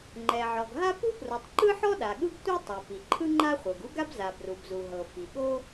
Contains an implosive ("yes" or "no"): yes